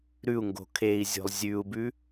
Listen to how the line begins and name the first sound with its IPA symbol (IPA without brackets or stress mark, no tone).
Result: ɾ